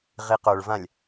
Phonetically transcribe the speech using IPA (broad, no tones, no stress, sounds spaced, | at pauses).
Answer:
ʁ i q o ɭ v ã lʲ